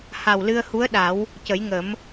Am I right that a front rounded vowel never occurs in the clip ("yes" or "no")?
yes